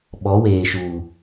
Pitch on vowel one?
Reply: rising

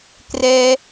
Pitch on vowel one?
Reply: high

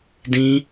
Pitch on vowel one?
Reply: high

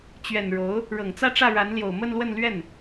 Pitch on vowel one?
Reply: low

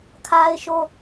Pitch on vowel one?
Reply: high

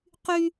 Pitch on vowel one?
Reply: high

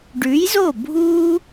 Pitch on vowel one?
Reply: rising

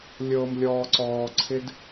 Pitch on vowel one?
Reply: low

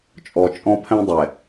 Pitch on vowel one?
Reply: low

